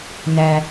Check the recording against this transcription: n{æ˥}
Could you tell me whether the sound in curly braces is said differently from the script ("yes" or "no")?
yes